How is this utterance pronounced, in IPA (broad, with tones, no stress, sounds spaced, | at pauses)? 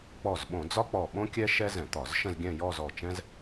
k͡p ɔ˧˩ z ɓ õ˧˩˧ d͡z ɒ˥ k͡p ɔ˧˩ ɓ õ˥ kʲ ɛ˥ ʃ ɛ˥ z ɛ̃˧˩˧ t̪ ɒ˧˩˧ z ʃ ə̃˥˧ z ɡʲ ɛ̃˥˧ j ɔ˥˧ z ɔ˧˩ t͡ʃ ɛ̃˥ z